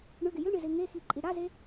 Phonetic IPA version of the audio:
ɳ ʏ ɡ ɪ j ʏ ɳ ɪ z ɪ ŋ e x i ǃʼ i ɽ a z e

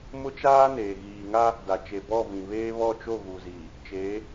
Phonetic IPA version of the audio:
m ʊ˦ t͡ʃ aː˦ n eː˨ ɣ iː˨ ŋ a˦ | d a˨ t͡ʃ e˨ b ɔ˦˨ v ĩ˨ β eː˦ β ɔ˦˨ t͡ʃ o˦˨ ɣ u˨ z iː˨ | t͡ʃ eː˨˦

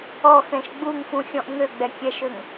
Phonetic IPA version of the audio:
ɔ x ɛ̃ ʃ ɡ͡b u ŋ f ũ xʲ ɔ̃ ʔ ŋ ø ɡ͡b ɛ kʲ ɛ ʃ ø ŋ

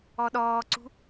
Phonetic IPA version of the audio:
ɔ ɗ ɔː ǀ ṳ

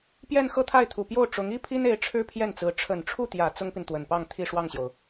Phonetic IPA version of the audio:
p j ɛ˥˧ n x ɤ˥˧ t̪ʰ a˥˩ ɪ̯ t̪ʰ u˨˩ p j o˥˩ ʊ̯ ʈ͡ʂ ʊ˧˥ ŋ i˥ pʰ i˥ n e˧˥ ɪ̯ ʈ͡ʂʰ ɻ̩˥ pʰ j ɛ˥˩ n t͡s ɹ̩˧˥ ʈ͡ʂʰ ə˨˩ n ʈ͡ʂʰ u˥˩ t̪ j ä˨˩ t͡s ʊ˥ ŋ p i˨ n t̪ w ə˨˩ n p ɑ˥˧ ŋ t̪ʰ i˥˧ ʂ w ɑ˥˩ ŋ ɕ j o˩ ʊ̯

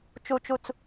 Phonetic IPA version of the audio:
t͡ʃ u˩ t͡ʃ u˩ t͡s

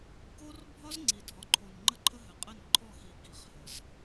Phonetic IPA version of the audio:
k o˦ r bʱ ɒ˦ z ŋ͡ǀ i˨ dʱ ɒ˨˦ ǃʰ o˨ n ŋ͡ǃ ə˦ ǃʰ ə˦ ɦ ɘ˨ qʼ ə˦˨ n ǃʰ ɔ˦˨ x i˨ k i˨ χ h ə˨ z

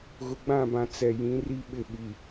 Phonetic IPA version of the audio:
ɣ ʊ˨ ɡ͡b ã˦˨ b ã˨ t͡s ɛ˨ j ĩ˨˦ r i˦ ɓ ɪ˦˨ ɓ i˨

